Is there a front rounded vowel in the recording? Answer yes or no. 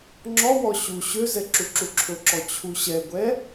yes